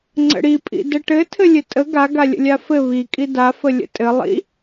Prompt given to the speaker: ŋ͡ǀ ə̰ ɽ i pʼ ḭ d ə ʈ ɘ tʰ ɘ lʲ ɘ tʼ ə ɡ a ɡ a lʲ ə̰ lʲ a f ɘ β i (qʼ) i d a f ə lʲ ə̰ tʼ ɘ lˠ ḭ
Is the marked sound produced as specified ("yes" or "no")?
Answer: no